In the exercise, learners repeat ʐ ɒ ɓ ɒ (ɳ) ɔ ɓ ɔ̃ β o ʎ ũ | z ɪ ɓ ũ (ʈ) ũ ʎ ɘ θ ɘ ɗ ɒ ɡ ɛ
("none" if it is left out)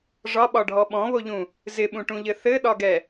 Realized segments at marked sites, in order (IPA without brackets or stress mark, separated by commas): ɖʱ, ʈ